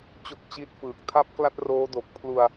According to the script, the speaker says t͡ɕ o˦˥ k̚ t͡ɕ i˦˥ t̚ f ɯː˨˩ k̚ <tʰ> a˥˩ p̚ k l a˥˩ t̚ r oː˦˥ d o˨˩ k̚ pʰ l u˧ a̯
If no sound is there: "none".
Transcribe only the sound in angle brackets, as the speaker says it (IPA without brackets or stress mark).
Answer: tʰ